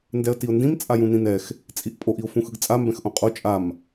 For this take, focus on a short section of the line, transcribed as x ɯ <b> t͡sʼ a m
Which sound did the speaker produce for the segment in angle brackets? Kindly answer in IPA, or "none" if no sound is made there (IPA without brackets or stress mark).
ɡ